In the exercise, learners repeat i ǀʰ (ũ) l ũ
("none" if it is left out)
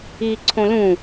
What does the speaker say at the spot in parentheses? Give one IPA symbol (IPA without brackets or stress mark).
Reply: õ